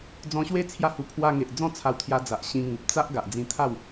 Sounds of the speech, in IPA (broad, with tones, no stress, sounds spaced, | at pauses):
d͡z ɔ̃˧ ɕ w e˦ t͡sʰ j a˦ h u˧ pʰ w a˧ ŋ e˨ ʔ d͡z ɔ̃˥˧ t͡sʰ a˧ w t̪ʰ j a˧ d͡z a˨ ʔ ɕ ĩ˧ ŋ u˨ p̚ t͡s a˦ ʔ ɡ a˨ ʔ d͡z ĩ˧ t̪ʰ a˥˧ w